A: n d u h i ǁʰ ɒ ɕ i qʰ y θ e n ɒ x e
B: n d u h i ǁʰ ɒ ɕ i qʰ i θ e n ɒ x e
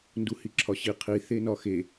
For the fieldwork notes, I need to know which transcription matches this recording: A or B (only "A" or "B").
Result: B